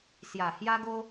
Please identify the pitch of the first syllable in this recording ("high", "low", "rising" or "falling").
low